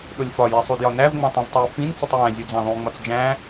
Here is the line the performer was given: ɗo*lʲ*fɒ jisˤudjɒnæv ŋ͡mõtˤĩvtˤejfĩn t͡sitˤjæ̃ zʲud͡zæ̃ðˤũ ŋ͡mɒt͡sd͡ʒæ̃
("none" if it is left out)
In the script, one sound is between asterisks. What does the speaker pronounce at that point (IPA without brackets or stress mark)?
lʲ